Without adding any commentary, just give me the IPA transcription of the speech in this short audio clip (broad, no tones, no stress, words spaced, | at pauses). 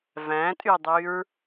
væ̃tʼydˤyɹ